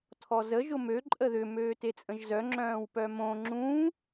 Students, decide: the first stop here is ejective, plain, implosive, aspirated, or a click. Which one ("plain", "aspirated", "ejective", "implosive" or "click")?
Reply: aspirated